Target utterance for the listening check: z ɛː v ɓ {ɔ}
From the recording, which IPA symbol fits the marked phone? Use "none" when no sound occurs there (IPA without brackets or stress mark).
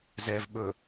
ɵ